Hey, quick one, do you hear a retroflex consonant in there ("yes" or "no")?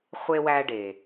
yes